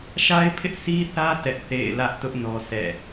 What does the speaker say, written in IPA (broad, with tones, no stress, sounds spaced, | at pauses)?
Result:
ʃ a˦ ɪ̯ pʰ ɪ˦ ʔ sʰ i˦ θ ä˦ t ɛ˦ ʔ θ ḛ˦˨ ɪ̯ l ä˦ ʔ t ʊ˦ ʔ n ɔ˦ sʰ ɛ̰˦˨